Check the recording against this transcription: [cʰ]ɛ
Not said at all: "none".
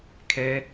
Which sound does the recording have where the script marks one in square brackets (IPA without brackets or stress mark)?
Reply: kʰ